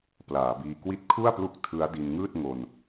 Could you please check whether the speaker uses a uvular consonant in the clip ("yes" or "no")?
no